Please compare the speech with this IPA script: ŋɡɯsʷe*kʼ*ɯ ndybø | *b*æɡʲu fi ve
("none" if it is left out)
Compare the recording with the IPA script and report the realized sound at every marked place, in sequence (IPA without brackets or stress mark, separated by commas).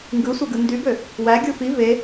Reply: ɡ, w